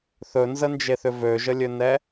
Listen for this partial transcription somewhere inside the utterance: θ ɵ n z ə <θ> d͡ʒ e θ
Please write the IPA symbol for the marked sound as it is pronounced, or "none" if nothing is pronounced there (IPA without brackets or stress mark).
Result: n